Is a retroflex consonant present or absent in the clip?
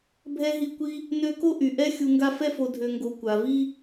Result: absent